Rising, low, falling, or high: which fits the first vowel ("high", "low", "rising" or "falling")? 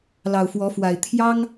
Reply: low